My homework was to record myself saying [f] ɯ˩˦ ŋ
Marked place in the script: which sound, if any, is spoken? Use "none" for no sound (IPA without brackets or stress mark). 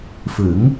f